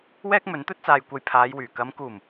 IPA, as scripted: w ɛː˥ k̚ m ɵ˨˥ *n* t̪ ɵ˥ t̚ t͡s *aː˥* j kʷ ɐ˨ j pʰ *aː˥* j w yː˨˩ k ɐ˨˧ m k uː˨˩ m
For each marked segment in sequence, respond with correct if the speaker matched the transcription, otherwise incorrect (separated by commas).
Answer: correct, incorrect, incorrect